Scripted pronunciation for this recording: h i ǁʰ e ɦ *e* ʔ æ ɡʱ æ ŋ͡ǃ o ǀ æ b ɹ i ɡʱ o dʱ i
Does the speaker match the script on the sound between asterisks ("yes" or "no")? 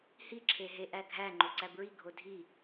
yes